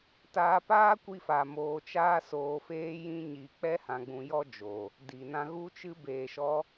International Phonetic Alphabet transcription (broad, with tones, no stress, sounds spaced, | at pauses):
t aː˧ p aː˦ kʷ i˧ f a˨ m oː˧ t͡ʃ aː˦ s oː˧ f eː˦ j ĩ˦ ɲ i˧ k͡p ɛ˧ h ã˧ ɡ͡b ũ˧ j ɔ˦ d͡ʒ o˨ | d i˨ n ã˧ ɣ u˦ t͡ʃ ɨ˦ b eː˧ ʃ ɔ˦